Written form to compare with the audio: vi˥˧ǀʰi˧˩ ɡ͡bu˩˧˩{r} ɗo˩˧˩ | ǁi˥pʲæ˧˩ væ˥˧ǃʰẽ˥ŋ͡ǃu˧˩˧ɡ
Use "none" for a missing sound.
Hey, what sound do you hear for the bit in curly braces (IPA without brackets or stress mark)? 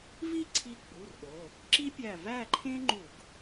r